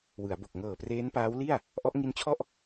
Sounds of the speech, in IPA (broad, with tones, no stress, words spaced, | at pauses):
wɯ˩˦a̯bo˨˩k̚ ŋɤː˨˩preː˦˥npaː˦˥wli˥˩a̯ | ʔɔ˦˥ʔŋi˦˥nt͡ɕʰɔ˥˩ʔ